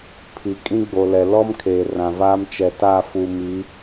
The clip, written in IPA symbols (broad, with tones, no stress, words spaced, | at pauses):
pʰi˨kʼĩ˦ɡ͡bo˨lɛ˨ lɔ˦m kʰeː˨rã˨vaː˦m t͡ʃɛ˨ ta˦˨ fu˨mi˨˦